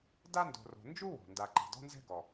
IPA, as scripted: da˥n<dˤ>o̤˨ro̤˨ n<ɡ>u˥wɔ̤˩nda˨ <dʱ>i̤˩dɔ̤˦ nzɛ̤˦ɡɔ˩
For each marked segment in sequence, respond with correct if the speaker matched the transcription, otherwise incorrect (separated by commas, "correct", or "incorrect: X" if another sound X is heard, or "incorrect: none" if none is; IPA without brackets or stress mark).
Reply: incorrect: d, incorrect: d͡ʒ, incorrect: ǃ